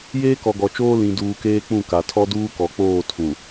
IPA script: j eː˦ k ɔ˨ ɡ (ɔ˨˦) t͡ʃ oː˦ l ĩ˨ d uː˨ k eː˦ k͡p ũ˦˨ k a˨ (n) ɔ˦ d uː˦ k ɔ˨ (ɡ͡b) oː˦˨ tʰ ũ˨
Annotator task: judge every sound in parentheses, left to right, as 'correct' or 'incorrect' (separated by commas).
incorrect, incorrect, incorrect